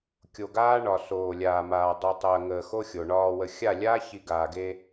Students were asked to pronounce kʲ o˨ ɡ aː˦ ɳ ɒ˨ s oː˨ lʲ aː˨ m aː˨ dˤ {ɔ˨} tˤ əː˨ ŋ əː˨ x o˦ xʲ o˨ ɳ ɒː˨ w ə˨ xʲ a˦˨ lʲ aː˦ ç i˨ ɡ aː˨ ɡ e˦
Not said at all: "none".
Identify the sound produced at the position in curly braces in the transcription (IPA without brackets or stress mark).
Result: o˨